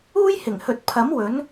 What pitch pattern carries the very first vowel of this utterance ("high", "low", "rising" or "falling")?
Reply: high